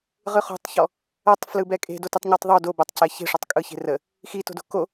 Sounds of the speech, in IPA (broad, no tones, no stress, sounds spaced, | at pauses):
ʁ ɯ χ o̤ tˤ ç ɔ | ɐ tˤ f l ɯ b ɛ kʼ e̤ d o t ɯ tˤ ɲ o tˤ ðˤ o d o b ɐ tˤ c ɛ ç e̤ ʂ ɔ tˤ kʼ ɯ ç e̤ r ə | x i t o̤ d o̤ k o